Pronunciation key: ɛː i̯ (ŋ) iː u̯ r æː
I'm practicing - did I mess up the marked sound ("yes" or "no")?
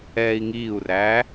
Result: no